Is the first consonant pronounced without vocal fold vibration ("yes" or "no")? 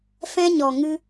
yes